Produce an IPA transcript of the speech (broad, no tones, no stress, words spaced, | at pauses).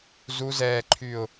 zu zɛːǃʰyːʊ̯